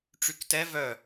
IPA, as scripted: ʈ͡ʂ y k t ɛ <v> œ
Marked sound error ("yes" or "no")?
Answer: no